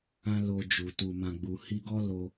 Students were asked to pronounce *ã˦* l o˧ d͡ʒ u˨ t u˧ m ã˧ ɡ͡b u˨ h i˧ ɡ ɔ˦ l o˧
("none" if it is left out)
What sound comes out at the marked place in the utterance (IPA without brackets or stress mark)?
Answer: ã˦